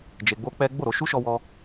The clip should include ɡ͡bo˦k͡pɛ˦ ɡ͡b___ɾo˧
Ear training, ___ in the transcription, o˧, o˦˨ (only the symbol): o˦˨